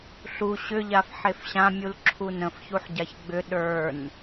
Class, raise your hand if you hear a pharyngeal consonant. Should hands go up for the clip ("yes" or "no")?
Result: yes